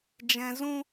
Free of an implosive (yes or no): yes